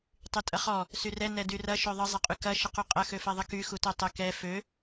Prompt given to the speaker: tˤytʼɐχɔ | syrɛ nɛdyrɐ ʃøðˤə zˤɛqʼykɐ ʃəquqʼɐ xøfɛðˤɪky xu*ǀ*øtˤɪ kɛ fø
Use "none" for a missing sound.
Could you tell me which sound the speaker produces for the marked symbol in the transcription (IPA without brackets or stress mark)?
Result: t